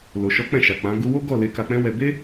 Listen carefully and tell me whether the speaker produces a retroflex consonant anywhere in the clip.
no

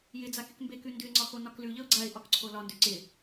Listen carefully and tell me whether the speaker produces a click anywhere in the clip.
yes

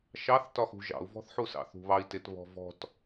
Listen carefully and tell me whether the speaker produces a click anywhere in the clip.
no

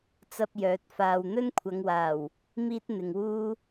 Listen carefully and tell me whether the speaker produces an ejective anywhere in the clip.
no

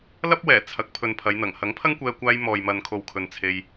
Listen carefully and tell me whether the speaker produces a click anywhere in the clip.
no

